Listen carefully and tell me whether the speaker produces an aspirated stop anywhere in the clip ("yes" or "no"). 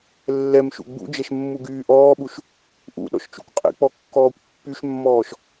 no